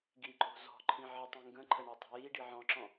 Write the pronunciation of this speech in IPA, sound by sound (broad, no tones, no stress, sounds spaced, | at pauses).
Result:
ɡ i ǃʼ o̤ z ɔ̤ ǃʰ ĩ ʕ ə tˤ ĩ ŋ ɡ ə̃ ǃʰ ə ɳ ə tˤ o̤ j i ɖ i ʕ ɔ̃ ǁ ɔ̃